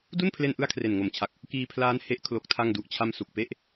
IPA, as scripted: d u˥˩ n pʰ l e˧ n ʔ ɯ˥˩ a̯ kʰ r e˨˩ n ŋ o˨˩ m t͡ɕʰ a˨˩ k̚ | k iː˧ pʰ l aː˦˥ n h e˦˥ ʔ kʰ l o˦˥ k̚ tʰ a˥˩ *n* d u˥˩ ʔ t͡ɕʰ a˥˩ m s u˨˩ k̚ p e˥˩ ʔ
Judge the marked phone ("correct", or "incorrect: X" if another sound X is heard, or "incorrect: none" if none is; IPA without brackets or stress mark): incorrect: ŋ